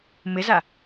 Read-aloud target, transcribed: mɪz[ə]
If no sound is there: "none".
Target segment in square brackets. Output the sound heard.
a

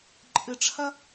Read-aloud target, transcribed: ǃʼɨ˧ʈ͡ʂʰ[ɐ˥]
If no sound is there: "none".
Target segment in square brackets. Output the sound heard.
ɐ˥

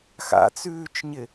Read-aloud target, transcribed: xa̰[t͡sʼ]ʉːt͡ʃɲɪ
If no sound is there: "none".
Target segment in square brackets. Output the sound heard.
t͡s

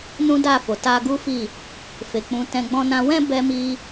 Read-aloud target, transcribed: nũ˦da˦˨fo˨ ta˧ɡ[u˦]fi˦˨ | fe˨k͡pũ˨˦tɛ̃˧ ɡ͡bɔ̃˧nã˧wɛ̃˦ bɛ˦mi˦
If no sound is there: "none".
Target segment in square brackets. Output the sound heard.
u˦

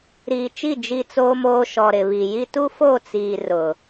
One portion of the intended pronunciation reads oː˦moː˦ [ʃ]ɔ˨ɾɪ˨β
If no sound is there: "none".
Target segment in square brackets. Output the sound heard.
ʃ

